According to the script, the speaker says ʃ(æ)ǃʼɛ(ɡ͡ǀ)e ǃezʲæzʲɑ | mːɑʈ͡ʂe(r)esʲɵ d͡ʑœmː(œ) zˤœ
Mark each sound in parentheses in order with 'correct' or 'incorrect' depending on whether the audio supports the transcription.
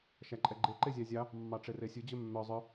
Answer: correct, incorrect: ɡ͡ǃ, correct, correct

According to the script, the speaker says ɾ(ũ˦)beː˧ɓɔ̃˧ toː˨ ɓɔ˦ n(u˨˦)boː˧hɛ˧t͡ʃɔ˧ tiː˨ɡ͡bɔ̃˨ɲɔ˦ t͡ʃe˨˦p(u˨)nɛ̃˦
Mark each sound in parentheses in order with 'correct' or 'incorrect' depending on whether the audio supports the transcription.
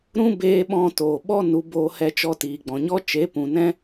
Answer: correct, correct, incorrect: ũ˨

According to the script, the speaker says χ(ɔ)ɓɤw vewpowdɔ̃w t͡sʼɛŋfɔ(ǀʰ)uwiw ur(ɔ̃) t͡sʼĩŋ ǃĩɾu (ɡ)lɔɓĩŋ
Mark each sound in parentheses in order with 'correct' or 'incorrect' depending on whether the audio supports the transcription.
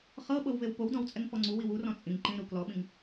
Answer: incorrect: ɤ, incorrect: ŋ͡ǀ, correct, incorrect: k

